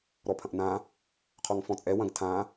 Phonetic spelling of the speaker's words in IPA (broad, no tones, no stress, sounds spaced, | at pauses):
ɾ ɔ pʰ ɐ̃ ʔ n ã | qʰ ɔ ŋ f ɔ̃ t͡sʼ ɛ w ɐ̃ ɡ tʰ ã